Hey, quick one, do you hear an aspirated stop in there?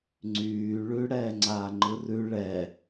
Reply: no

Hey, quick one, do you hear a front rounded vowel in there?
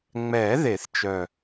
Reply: yes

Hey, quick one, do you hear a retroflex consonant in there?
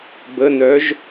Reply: no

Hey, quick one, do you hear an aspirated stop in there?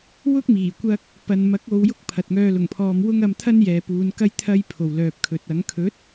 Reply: yes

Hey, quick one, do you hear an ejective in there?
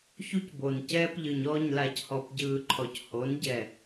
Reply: no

